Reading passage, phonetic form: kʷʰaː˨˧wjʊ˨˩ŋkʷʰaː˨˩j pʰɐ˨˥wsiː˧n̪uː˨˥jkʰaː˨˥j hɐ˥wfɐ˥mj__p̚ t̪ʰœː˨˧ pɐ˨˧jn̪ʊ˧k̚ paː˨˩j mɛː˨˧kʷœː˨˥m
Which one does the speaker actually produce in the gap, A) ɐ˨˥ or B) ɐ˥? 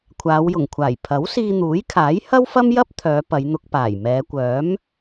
B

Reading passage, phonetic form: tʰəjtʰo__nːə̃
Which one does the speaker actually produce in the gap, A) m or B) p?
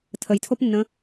B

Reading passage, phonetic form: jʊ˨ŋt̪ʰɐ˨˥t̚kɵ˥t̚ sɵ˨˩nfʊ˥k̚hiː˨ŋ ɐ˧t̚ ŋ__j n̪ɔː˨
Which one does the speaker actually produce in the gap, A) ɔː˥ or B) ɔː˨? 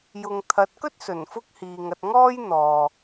A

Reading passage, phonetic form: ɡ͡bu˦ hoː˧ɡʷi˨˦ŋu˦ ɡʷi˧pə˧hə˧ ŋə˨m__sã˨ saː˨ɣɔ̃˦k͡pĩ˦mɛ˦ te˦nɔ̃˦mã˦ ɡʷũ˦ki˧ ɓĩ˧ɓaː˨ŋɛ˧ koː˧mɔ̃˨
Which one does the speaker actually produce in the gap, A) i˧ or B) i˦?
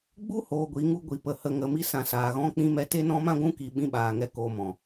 A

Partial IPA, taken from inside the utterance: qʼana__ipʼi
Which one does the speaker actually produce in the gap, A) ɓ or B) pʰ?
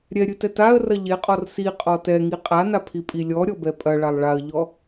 B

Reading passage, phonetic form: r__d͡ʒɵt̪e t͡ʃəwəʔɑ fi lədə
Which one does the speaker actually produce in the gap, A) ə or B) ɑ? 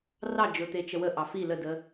B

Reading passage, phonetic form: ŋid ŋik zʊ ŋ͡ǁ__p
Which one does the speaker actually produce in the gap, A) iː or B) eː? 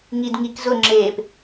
B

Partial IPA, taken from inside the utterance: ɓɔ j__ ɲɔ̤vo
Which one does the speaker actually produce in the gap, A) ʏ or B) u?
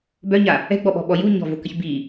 B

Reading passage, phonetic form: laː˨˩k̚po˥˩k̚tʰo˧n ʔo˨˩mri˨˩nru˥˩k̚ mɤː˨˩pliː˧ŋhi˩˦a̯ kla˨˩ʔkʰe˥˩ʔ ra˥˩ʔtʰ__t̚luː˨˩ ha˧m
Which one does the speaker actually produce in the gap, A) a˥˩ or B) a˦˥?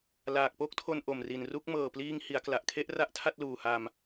A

